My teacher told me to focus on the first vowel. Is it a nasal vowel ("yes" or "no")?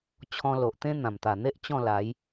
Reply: yes